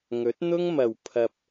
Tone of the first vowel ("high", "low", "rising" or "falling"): rising